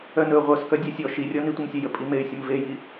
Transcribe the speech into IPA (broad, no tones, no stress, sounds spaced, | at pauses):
œ n ɵ ʁʷ œ s k œ dʲ e sʲ ɔ ʃ i rʲ ɔ n i tʷ i m sʲ ɘ j ə pʼ i m e y̯ sʲ ə m v e j i